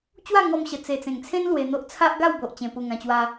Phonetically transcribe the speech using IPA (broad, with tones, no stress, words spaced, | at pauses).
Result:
t͡ɕwa˥˧ŋɔ˧mɕə˨˩ t͡se˨˩t͡sẽ˨˩ŋt͡sʰẽ˦n lwe˧n̪o˦ʔ t͡sʰa˦ʔɡa˥˧wbo˨ʔ t͡ɕẽ˧pu˧ŋã˧t͡ɕwa˦